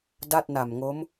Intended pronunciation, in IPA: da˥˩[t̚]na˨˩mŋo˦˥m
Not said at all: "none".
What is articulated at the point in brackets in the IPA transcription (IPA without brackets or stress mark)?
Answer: t̚